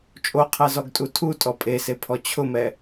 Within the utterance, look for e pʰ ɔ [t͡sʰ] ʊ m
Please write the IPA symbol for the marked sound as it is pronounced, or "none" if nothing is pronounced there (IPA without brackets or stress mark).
t͡ɕʰ